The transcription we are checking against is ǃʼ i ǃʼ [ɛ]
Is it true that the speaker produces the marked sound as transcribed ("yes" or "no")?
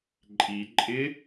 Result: no